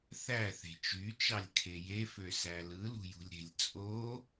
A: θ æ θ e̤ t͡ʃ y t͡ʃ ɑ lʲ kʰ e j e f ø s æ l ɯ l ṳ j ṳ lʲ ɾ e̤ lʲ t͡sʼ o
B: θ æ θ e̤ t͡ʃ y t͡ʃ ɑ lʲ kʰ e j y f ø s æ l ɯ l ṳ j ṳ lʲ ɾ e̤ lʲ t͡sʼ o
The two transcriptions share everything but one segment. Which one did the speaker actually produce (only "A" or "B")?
A